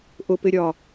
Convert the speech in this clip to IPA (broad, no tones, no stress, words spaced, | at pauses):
ʔʊpɪɾʲɒː